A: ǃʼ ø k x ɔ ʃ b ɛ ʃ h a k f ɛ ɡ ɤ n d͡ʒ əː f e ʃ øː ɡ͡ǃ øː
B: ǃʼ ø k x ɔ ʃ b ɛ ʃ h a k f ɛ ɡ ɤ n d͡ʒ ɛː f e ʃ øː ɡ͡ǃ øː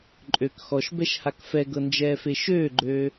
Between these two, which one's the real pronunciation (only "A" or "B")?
B